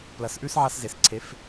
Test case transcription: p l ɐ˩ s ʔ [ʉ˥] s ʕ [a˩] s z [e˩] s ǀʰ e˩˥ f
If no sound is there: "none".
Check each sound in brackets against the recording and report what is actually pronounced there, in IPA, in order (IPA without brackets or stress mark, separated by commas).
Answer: ʉ˥, a˥, e˩